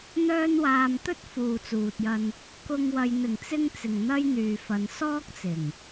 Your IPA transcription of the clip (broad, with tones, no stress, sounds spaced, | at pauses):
n̪ œː˥ n w aː˧ m t̪ ɵ˥ t̚ f uː˨ t͡s uː˨ t̚ j ɐ˧ n | k ʊ˧ ŋ w ɐ˨ j n̪ ɪ˨˩ ŋ t͡s ɪ˧ ŋ t͡s ɪ˨ ŋ n̪ ɐ˥ j n̪ yː˨ f ɐ˨ n s ɔː˥ k̚ t͡s ɪ˨˩ ŋ